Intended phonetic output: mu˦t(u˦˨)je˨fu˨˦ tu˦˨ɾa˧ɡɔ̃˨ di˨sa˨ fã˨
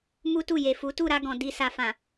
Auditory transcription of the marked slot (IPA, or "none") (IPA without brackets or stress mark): u˦˨